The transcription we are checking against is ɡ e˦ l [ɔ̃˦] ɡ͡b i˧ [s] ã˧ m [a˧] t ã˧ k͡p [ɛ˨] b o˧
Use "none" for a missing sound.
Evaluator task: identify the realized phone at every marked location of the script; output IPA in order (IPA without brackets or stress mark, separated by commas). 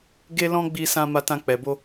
ɔ̃˦, s, a˧, ɛ˨